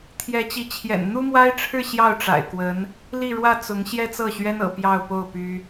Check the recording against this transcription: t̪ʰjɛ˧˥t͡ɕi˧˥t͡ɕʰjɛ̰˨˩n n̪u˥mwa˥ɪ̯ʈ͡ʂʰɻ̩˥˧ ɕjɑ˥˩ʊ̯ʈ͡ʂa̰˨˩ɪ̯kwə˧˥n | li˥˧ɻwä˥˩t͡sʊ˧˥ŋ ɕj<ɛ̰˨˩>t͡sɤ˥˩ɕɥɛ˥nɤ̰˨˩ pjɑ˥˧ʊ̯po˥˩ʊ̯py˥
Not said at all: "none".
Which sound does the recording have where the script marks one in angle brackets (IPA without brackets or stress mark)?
ɛ˥